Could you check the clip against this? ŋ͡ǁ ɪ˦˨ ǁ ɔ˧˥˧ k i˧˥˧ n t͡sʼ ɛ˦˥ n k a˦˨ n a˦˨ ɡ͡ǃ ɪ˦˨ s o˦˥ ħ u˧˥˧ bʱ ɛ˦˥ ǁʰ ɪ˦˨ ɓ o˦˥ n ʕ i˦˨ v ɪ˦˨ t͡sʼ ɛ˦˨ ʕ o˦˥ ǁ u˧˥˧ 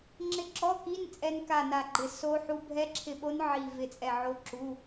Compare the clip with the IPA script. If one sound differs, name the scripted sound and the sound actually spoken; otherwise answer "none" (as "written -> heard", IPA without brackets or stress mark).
none